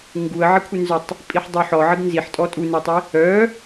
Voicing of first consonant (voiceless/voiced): voiced